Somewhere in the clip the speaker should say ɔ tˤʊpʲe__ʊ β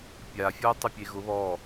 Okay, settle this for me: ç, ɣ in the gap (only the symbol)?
ɣ